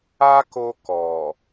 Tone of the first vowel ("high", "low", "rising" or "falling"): high